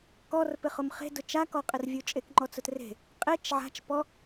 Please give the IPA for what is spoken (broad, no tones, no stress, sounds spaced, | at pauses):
k ɔ r p ɪ χ ʊ m χ e̤ d ʊ t͡ʃ a k ɔ qʼ ɪ r vʲ u t͡ʃʼ e k ŋ͡ǃ ɔ t͡s ʊ t r e̤ | qʼ e t͡ʃ ʕ a̤ t͡ʃ p ɔ